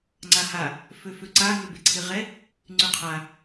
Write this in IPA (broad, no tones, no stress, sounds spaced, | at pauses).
ŋ͡ǀ a h a | f ø f ø ǀ a ŋ ø b e ǀʰ ɪ ʁ ɛ | ŋ͡ǀ y qʰ a